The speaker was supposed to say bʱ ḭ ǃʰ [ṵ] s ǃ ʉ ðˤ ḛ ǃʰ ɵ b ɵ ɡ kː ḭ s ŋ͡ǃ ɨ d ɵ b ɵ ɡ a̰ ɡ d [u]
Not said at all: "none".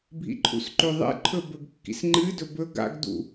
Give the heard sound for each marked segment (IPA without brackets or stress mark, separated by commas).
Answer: ṵ, ṵ